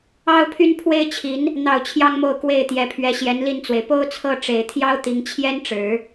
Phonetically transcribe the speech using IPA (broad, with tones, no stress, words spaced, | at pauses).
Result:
ɑ˥ʊ̯pʰy˥n pʰwe˥ɪ̯t͡ɕʰi˧˥n | n̪ɑ˥˩ʊ̯t͡ɕʰjɑ˥ŋmo˥˧ʊ̯ kwe˥˩ɪ̯t̪jɛ˧˥pʰɥɛ˧˥ ɕjɛ˧˥nli˥˩nt͡swe˩ɪ̯ po˥ʊ̯t͡sʰɤ˥˩ʈ͡ʂe˨˩ɪ̯t̪ʰjɑ˥ʊ̯ t̪i˧˥ŋt͡ɕʰjɛ˥nʈ͡ʂɻ̩˨˩˦